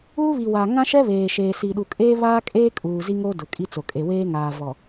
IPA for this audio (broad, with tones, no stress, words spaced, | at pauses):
uː˦βi˨waː˨ ŋã˦ʃɛ˦ βeː˨ʃeː˨ si˨ɗu˨ kʼeː˦ βaː˦kʼeː˦ kʼuː˨zi˦ŋo˦ dʊ˨kʼi˦t͡so˨ kʼe˨weː˦ŋaː˨ vɔ˨